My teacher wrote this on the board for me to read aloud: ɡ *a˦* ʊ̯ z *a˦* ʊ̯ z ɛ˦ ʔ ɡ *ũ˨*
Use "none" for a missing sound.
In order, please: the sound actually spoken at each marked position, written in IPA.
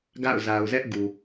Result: a̰˦˨, a˨, u˨

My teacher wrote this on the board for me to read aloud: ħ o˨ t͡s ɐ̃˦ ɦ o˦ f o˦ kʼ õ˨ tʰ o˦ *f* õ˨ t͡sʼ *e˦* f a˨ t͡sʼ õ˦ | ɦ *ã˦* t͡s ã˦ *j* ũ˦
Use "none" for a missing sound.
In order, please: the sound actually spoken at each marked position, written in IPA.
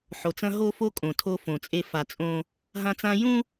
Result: f, e˦, ã˦, j

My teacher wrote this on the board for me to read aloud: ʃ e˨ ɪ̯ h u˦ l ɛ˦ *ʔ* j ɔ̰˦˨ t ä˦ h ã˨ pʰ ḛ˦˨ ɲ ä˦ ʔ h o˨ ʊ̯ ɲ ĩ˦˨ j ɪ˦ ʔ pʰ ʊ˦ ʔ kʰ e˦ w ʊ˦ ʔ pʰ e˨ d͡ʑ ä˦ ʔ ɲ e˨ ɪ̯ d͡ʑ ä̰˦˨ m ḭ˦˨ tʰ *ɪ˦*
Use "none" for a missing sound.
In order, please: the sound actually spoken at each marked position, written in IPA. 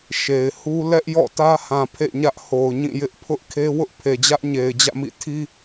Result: ʔ, i˦

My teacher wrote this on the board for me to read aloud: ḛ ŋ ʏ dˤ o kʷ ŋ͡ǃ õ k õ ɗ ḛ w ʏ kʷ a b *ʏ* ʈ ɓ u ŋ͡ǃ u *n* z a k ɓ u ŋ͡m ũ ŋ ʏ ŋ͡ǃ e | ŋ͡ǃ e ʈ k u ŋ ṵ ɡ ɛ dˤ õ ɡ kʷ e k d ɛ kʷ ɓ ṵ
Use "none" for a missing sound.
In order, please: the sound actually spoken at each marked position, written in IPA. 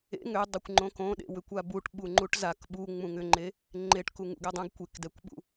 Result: u, ʈ

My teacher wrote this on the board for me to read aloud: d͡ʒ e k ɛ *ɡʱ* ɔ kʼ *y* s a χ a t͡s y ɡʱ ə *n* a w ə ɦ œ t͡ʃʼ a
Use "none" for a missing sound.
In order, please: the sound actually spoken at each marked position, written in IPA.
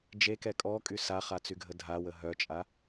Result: kʼ, y, dʱ

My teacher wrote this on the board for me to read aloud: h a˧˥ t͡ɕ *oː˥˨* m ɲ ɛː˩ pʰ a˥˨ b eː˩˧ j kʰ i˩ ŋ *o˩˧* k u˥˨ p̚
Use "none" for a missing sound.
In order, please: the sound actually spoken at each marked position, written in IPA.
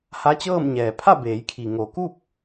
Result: ɤː˥˨, o˩˧

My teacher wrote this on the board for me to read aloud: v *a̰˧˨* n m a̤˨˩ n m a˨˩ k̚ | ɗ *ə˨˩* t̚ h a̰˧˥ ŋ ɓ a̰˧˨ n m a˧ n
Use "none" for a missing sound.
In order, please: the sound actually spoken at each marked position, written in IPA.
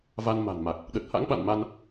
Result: a˧, ə˨˩

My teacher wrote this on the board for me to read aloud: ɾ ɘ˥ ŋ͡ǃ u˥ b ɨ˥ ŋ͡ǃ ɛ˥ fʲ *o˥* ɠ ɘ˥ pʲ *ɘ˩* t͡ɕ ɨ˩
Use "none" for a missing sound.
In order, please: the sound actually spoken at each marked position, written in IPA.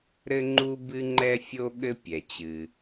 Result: o˥, ɛ˩

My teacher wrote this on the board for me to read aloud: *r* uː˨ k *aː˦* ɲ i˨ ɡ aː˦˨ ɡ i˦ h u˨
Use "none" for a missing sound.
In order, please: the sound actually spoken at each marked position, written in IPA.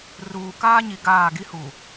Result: r, aː˦

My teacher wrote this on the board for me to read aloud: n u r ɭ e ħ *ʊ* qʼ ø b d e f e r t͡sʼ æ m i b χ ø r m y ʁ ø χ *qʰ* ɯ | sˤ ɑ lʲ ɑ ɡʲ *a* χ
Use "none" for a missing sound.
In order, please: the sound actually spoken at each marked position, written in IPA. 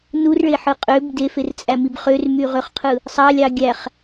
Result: ɯ, qʰ, æ

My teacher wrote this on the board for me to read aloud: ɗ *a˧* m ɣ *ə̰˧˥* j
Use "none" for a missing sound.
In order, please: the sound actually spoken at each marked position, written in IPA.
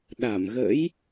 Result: a˧˩, ə̰˧˥

